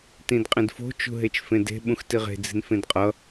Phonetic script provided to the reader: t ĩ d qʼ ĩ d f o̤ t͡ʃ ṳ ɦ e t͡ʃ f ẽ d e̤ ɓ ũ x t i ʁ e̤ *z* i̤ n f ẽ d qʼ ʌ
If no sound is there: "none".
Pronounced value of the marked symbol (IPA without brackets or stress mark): d͡z